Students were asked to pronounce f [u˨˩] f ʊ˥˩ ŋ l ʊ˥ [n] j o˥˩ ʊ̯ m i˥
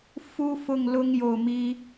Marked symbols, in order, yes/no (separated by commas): no, no